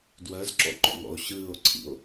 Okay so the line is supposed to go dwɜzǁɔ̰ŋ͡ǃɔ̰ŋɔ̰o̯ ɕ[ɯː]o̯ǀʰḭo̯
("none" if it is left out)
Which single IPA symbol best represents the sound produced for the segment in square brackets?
ɯː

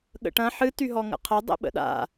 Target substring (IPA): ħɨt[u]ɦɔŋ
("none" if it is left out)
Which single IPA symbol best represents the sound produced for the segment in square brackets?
y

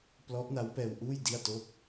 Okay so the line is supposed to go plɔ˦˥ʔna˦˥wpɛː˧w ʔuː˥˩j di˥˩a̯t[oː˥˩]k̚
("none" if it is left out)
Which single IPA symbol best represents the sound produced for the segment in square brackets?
oː˥˩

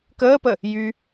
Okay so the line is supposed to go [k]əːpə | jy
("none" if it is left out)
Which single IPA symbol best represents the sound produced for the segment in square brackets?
k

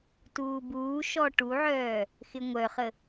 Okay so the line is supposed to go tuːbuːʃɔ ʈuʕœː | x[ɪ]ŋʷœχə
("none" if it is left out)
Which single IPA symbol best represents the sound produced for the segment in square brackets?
ɪ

